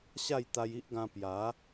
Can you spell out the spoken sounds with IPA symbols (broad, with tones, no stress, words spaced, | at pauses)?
ɕa˥˧jt̪a˧ji˦ʔɡã˧ pja˨˦